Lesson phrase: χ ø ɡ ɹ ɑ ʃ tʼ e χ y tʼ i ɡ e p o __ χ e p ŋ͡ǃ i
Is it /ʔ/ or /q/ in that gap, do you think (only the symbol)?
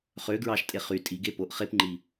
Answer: ʔ